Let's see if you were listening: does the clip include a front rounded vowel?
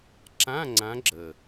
no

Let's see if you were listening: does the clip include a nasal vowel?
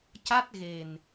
no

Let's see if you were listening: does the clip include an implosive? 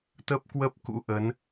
no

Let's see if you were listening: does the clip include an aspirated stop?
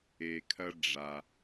yes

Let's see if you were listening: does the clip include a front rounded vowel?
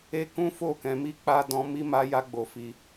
no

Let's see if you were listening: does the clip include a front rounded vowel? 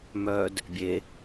yes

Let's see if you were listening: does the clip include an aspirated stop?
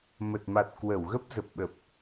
no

